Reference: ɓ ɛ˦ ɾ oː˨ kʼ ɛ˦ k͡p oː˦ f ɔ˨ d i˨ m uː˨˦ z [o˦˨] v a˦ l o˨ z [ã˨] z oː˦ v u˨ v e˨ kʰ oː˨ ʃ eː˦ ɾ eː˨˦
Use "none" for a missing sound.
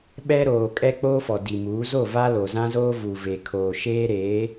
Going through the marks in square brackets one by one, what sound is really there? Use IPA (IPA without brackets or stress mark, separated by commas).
o˦˨, ã˦